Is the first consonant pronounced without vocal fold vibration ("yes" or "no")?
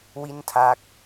no